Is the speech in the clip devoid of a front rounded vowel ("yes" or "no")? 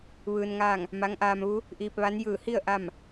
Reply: yes